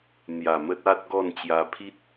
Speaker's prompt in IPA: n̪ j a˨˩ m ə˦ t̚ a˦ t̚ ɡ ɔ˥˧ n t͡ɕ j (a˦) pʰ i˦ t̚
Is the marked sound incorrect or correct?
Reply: incorrect